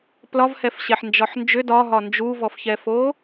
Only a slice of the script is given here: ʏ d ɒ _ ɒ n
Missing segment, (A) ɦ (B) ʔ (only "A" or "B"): A